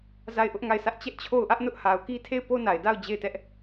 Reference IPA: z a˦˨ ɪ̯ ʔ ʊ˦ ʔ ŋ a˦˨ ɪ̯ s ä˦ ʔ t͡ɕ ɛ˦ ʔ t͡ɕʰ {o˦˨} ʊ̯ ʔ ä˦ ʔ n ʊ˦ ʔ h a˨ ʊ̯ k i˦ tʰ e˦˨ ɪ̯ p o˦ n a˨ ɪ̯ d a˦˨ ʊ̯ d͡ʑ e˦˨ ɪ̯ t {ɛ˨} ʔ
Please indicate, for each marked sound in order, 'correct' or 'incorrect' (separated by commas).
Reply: correct, incorrect